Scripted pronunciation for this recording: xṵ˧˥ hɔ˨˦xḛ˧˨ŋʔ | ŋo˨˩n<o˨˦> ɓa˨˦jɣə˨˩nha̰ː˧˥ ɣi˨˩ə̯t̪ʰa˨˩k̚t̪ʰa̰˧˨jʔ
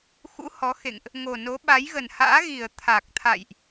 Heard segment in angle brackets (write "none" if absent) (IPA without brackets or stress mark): o˨˦